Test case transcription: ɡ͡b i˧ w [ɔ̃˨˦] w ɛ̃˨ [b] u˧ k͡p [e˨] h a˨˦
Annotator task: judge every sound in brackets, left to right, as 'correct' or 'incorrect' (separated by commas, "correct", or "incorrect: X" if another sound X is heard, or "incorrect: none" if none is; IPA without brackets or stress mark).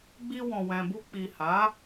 incorrect: ɔ̃˨, correct, incorrect: i˨